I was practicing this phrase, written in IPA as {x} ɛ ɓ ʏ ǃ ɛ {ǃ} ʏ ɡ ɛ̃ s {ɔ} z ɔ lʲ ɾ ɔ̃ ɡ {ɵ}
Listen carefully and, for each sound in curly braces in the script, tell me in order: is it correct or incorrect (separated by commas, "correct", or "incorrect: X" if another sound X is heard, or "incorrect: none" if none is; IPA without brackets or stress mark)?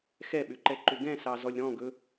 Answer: correct, correct, incorrect: ɑ, correct